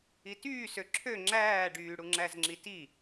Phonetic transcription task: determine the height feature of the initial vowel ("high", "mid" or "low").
high